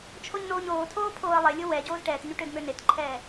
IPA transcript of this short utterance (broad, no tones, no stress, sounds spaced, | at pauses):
t͡ʃʰ o ɲ n oː ɲ oː tʰ oː pʰ oː ə̯ lˠ e lʲ o w ɛ ɟ oː z ʈ ɛː t ɲ ø ʈ ø d m ø n e t ǃʰ ɛː